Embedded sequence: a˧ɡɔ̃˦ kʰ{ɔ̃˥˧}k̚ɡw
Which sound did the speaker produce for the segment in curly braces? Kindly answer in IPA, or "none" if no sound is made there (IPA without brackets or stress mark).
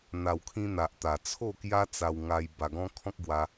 ɔ̃˦